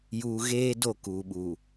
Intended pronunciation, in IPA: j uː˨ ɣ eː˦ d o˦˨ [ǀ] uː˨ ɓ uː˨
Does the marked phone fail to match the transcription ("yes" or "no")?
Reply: yes